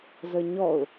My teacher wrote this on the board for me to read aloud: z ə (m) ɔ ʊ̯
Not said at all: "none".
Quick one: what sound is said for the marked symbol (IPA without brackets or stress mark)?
ɲ